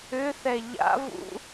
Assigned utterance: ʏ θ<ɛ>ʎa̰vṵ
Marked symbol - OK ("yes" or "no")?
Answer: yes